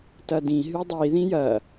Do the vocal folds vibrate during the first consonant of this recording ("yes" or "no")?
no